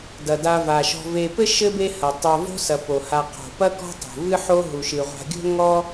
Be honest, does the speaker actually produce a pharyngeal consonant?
yes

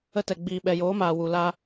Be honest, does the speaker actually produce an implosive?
yes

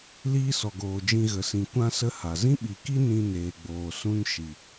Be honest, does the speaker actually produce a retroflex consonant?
no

